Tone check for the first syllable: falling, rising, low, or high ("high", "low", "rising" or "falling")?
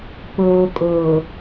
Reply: low